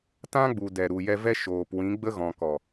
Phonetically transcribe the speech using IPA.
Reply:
tã˦ɡ͡bu˨ dɛ˨ɾu˨jɛ˧vɛ˦ ʃoː˨pwĩ˨˦ ɡ͡bə˦ɣɔ̃˨ kɔ˨

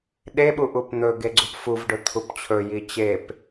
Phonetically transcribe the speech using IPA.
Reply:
ɗeɓu ʔupn̪ɵ ɡeɡ͡ǀupfuvɖɵ t̪ʰupt͡ɕʰɵ jit͡ɕep

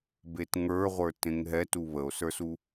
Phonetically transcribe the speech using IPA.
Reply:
betŋə˞ʁʷə˞ tẽŋɦɛ tuβəo̯sə˞su

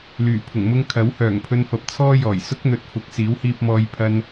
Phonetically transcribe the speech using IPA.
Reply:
lyː˨˩pʰʊ˨˩ŋ mʊ˥ŋ kʰɐ˨˥whœː˨˩ŋpʰɵ˧n fɐ˨p̚t͡sʰɔː˥jɔː˨˩j sʊ˥k̚n̪ɵ˨t̚ fʊ˨˥k̚siː˨˥whiː˧p̚mɔː˧j pʰɐ˧n

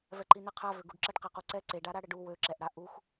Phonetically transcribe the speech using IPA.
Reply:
vɛǃinɛqʰa vøɡuɖǁəɖ qequǀɛ ǀeɖa ɾaɽəɖu wøǁɛʔɽa ʔux

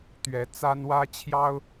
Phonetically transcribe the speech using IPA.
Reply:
t̪ɥɛ˨˦ t͡sa˦nwä˦ t͡ɕʰjɑ˦ʊ̯

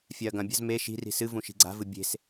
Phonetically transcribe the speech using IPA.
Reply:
fʲaɐ̯ɡɐ̃bʲa̤z me ʃi̤ri̤ sɨvũ ʃi̤ɡ͡ǀa̤vɨ bʲe̤s

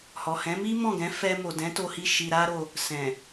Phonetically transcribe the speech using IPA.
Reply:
hɔ˨hɛ̃˨˦mi˦ mɔ̃˦˨ɡɛ̃˨˦fɛ˧ mo˨dɛ̃˨˦to˧hi˧ ʃi˧ɾa˦ɾo˧ | sɛ̃˨

